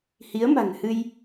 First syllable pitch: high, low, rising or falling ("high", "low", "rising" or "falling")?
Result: rising